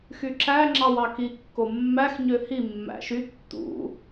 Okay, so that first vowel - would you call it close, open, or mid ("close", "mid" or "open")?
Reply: close